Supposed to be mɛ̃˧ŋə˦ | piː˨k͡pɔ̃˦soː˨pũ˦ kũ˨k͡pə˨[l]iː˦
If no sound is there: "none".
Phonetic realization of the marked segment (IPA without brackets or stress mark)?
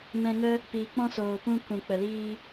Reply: l